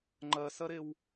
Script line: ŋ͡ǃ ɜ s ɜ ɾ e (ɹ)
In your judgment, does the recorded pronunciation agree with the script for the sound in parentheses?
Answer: no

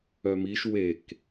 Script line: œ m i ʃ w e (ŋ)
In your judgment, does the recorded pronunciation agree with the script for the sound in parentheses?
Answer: no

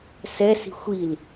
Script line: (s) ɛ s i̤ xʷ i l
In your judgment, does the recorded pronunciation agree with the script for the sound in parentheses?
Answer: yes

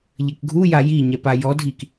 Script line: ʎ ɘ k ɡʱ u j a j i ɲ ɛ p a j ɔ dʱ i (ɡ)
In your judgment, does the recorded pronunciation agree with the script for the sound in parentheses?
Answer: no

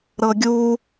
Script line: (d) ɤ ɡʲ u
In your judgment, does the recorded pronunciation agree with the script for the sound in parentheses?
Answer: no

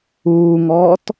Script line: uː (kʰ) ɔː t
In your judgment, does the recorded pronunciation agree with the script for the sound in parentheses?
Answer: no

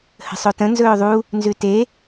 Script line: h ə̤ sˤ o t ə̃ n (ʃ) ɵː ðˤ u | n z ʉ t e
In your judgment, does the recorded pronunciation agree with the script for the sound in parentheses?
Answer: no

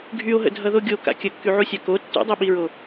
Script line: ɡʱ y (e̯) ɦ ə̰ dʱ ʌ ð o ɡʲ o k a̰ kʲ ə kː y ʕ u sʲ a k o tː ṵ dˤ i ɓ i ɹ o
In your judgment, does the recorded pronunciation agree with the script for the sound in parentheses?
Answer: no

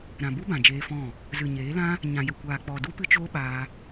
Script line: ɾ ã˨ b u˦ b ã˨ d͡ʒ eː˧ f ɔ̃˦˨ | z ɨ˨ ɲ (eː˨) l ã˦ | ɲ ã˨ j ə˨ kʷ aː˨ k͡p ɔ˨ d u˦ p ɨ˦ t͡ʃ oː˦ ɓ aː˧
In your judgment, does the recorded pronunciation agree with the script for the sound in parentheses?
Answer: no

